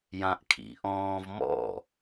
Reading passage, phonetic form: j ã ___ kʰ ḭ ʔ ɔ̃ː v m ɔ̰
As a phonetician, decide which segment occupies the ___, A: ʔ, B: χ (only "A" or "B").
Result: A